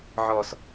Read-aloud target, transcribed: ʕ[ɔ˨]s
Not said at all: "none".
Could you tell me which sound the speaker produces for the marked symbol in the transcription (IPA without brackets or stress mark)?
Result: ɔ˨